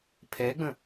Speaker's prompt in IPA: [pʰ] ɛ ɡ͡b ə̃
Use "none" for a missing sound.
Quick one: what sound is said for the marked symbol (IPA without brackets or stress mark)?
pʰ